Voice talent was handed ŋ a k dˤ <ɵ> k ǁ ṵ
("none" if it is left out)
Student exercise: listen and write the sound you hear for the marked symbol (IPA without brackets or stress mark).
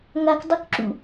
ɵ